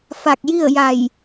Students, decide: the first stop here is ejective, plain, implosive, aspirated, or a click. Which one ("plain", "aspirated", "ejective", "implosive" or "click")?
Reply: plain